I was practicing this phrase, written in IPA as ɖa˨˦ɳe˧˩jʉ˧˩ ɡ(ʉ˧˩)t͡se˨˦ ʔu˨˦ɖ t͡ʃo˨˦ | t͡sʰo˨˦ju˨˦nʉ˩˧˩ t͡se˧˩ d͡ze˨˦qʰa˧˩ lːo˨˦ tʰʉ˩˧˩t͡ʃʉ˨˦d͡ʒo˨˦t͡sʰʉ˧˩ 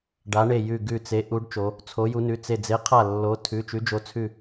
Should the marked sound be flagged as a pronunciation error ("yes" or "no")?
no